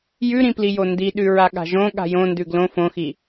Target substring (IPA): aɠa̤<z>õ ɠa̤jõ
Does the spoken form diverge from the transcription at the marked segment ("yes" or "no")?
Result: yes